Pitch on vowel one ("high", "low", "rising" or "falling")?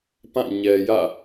falling